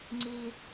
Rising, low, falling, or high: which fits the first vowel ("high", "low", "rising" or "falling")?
high